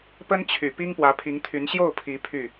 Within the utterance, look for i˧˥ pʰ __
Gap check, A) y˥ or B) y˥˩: B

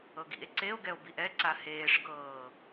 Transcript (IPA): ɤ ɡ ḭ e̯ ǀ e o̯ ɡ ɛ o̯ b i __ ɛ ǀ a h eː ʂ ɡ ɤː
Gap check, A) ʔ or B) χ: A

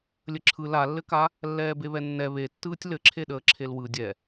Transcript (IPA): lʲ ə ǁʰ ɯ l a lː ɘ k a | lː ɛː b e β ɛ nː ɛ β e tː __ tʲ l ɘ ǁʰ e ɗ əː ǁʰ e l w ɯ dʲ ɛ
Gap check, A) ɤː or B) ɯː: B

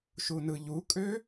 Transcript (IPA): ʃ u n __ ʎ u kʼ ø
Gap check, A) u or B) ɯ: B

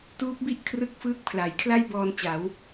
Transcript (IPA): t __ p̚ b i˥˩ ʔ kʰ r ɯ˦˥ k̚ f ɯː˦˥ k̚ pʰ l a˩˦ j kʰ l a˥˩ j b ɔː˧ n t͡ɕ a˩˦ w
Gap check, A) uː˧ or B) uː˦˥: B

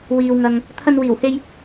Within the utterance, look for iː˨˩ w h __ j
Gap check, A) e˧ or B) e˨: A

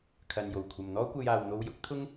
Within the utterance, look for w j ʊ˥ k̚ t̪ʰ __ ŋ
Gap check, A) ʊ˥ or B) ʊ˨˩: A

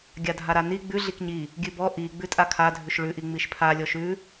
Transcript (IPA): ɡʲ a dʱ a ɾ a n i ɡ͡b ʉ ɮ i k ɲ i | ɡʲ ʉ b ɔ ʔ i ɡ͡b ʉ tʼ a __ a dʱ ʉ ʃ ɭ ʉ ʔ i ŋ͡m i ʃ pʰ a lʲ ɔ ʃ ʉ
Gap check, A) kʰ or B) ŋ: A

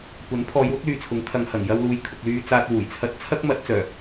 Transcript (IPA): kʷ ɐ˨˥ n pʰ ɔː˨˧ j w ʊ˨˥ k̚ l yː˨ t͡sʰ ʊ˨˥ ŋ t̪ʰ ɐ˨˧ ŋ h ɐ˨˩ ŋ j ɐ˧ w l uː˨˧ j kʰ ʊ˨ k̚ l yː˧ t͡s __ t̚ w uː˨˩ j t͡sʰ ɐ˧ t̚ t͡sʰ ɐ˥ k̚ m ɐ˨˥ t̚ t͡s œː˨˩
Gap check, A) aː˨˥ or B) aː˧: B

